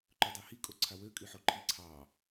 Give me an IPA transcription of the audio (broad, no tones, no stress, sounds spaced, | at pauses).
ǃ ɵ dˤ ɵ h i kʼ o ǀʰ a w ø kʼ y ħ o ǃʰ i ǀʰ ɑ